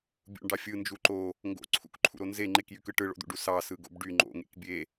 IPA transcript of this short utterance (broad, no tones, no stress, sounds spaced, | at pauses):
bʲ ṵ ɳ ɖ ɑ fʲ ɯ n d͡ʒ u ǃ o | ŋ ɡ o̰ ǀʰ ṵ k ǃʰ ṵ ɾ o n z e ŋ͡ǃ e k j y k ɯ ʈ ɯ ɭ o̰ d̪ ṵ ɖ u s ɑ s ɯ ɡ o̰ b ɖ y ŋ͡ǃ o̰ ŋ ḛ k bʲ e